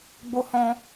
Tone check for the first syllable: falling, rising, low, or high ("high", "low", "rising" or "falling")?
high